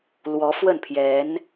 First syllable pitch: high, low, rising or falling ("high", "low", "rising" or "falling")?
rising